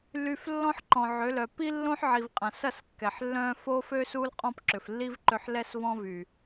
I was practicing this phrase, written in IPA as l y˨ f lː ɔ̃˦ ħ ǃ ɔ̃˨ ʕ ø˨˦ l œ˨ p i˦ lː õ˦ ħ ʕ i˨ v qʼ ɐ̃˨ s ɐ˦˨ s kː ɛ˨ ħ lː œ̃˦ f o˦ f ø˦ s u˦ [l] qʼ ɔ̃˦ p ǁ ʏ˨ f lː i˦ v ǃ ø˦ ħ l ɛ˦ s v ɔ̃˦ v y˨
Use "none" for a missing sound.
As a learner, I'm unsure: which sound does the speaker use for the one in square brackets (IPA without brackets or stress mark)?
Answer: l